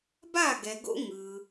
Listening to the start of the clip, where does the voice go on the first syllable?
falling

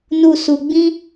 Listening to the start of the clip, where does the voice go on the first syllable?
low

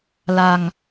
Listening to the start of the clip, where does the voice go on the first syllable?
low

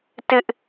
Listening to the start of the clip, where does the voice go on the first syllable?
high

